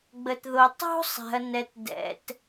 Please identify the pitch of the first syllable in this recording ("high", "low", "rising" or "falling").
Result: low